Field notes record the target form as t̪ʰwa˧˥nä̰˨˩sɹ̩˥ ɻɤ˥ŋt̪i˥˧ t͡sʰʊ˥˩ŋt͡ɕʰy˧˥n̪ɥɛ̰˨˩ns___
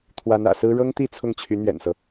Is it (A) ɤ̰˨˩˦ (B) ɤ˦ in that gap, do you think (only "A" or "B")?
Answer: B